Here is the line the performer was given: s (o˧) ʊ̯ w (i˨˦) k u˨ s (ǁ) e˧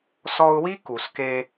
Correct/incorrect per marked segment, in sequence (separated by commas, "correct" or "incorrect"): incorrect, incorrect, incorrect